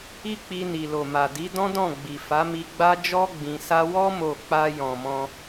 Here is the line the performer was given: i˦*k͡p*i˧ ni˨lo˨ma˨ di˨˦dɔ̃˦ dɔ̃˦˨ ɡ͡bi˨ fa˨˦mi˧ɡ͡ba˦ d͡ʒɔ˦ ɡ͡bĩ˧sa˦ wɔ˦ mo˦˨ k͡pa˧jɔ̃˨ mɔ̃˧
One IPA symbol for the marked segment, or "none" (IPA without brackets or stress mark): k͡p